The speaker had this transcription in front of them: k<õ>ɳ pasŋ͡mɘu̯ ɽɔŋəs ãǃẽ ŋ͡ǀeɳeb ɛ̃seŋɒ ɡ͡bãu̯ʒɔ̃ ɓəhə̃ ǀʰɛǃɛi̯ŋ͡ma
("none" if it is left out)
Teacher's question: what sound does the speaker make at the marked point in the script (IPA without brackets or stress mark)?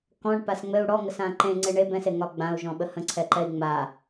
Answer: ɔ̃